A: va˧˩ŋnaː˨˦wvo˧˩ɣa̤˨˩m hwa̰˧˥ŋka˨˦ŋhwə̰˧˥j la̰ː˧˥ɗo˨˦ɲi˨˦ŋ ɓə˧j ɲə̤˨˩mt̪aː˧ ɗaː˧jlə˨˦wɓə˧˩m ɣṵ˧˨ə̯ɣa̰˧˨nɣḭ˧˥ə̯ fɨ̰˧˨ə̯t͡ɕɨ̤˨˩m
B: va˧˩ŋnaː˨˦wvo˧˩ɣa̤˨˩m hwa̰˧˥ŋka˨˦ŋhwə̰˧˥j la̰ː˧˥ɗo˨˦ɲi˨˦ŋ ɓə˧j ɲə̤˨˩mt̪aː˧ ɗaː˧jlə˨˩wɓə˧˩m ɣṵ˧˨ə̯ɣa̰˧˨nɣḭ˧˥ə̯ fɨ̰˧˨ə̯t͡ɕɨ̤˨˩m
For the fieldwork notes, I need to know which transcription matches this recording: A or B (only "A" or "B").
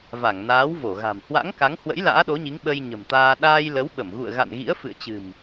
A